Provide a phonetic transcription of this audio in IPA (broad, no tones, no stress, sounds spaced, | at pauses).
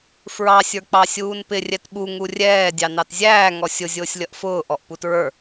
f ɹ ɑ sʲ ə˞ k͡p ɑ sʲ uː n p ɪ rʲ ɛ t ɓ u ŋ u rʲ ɛː dʲ ɑ n ɑ t zʲ æː ŋ ɔ sʲ ʊ zʲ ʊː sʲ lʲ ʌ ʔ f ʊː ʔ ɔ ʔ p u t ɹ ə˞